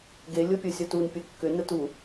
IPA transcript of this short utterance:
ɡe lʲopʲɤsʲɒtun pʲɤkːʏ nətu

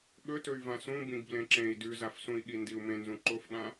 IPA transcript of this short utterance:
ɠɵtɵy̯ vãsũ bĩɡblẽǁẽi̯ dʉzafsũi̯ɠi ndiu̯mẽnzũ ǃofɠã

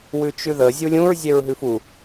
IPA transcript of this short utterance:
wʉt͡ʃʉðə zʲulʲũɹ zʲeɹɦʉfu

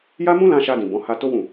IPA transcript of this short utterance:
ja˦mũ˦lã˧ ʃa˧dĩ˨ bɔ̃˨˦ha˧to˦ wũ˦˨

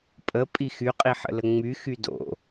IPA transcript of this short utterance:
pʼə pʼixyqʼi ħə̰ləŋ͡myxy do̰

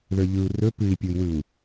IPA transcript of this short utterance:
ðə˞ʎɯu̯ rɵ pɨi̯pʲui̯wɯu̯

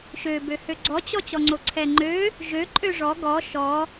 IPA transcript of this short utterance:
ʃøbø høɡ͡ǀɔt͡ɕɔ t͡ɕɔŋ͡ǀoǀʰɛŋ͡ǃø | ʒø ǃʼøʐɔ ɡɔ ʃɔ

